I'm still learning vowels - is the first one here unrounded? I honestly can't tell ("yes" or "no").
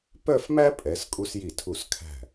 no